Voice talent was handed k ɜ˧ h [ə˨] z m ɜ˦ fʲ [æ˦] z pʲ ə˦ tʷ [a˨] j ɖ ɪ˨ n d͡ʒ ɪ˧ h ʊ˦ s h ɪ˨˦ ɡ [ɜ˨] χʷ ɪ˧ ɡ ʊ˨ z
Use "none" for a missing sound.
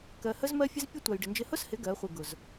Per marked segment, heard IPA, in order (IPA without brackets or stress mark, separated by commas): ə˦, ə˦, a˨, ɜ˨˦